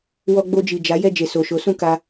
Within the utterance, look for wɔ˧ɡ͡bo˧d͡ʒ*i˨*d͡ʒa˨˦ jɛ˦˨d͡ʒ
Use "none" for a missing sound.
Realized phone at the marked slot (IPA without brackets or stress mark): i˨